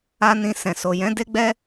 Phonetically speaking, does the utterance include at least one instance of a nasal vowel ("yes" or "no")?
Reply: yes